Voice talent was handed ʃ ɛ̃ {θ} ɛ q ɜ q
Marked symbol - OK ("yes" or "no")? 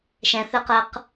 yes